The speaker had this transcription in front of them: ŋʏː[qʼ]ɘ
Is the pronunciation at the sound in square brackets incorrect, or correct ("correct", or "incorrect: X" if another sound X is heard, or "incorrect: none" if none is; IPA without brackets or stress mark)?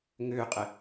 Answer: correct